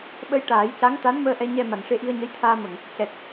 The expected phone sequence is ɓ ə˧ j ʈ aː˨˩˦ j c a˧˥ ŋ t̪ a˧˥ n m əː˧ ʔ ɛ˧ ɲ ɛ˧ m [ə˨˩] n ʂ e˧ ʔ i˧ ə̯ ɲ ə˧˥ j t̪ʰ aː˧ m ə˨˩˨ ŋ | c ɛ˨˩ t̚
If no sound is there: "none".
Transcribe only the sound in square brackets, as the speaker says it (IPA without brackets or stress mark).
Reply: a˨˩